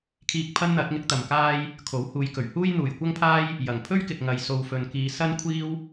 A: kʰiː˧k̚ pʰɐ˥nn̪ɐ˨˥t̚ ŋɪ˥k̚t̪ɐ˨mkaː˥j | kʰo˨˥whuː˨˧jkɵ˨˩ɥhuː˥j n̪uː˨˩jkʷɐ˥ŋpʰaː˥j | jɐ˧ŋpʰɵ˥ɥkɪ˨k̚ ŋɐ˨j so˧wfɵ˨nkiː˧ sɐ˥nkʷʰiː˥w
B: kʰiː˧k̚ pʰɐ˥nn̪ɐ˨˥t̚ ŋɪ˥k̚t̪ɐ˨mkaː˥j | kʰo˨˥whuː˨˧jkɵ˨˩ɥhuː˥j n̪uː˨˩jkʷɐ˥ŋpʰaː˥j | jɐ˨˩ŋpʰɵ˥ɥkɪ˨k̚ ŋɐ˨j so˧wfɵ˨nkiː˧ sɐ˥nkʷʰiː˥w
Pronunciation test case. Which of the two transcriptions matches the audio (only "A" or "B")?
B